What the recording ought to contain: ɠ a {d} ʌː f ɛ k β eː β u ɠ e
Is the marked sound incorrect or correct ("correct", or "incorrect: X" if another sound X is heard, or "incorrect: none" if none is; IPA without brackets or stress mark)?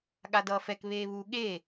correct